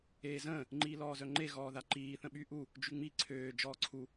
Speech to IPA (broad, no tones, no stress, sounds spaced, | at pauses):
eː z ə̃ː | ŋ͡ǃ iː l ɔː z œ ŋ͡ǃ e ɣ ɔː ð a ǃ iː θ ə̃ ɓ y ʔ u | d͡ʒ y ŋ͡m i ǀʰ øː d͡ʒ ɔː ǀʰ u